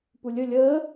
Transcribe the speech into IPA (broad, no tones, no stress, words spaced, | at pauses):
pulʲɵ lʲəː